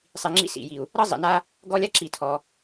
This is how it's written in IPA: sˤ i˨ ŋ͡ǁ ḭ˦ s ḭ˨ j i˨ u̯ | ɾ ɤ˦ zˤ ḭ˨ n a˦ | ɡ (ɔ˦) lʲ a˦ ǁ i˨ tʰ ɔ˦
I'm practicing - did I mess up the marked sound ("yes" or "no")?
no